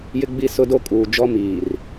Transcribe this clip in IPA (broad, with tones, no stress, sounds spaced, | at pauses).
j ɪ˦ ɡ͡b i˦ s ʊ˦ d o˦ kʼ uː˨ d͡ʒ ɔ˦ m iː˨ r